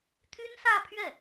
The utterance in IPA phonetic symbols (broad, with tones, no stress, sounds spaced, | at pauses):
t̪ʰ y˥ n s ä˥˧ pʰ ɥ ɛ˥˩